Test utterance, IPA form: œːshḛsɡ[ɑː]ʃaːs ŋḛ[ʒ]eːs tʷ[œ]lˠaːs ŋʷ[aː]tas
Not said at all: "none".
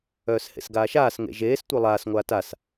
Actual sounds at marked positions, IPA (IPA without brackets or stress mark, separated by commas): aː, ʒ, œ, aː